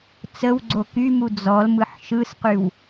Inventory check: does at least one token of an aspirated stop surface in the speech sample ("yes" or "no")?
no